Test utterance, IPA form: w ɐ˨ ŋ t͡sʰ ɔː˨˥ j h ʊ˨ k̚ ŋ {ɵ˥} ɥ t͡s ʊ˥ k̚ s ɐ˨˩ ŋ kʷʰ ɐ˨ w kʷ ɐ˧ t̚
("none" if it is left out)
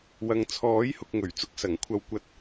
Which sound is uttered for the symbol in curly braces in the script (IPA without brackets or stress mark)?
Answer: ɵ˨˩